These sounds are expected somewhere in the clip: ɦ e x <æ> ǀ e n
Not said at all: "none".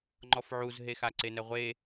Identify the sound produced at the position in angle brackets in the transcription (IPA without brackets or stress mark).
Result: a